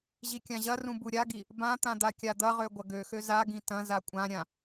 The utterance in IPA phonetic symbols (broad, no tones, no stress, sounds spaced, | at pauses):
ʑ i kʲ ã ʑ ɐ r ũ b u ɾʲ a ɡ i | b ã t̪ ã d̪ a kʲ a d̪ ɐ ʁ ø ɡʷ ɐ ɡ ø x ø z a ɡ ĩ t ɐ̃ z a kʷʼ ã ɾʲ ã